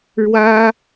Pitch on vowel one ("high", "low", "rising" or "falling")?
high